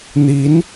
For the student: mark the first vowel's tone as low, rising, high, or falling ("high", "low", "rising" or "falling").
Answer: rising